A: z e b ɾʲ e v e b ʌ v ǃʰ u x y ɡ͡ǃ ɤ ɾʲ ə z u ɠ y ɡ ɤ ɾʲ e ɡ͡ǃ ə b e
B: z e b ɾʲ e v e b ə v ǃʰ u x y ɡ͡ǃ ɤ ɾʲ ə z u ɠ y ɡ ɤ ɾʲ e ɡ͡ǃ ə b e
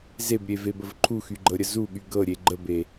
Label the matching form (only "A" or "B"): B